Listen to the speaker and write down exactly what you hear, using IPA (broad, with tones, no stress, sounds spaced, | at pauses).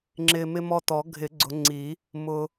ŋ͡ǁ ɪ˧ m ɪ˧ m ɔ˧ t ɔ˨˩˦ ɡʱ ɪ˨˩˦ ɡ͡ǀ ʊ˨˩˦ ŋ͡ǀ i˨˩˦ | m ʊ˧